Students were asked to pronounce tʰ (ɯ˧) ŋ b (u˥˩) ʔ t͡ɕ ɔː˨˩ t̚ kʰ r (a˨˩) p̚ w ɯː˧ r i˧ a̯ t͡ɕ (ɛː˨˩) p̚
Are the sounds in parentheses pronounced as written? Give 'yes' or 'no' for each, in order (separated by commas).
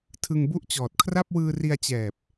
yes, yes, no, yes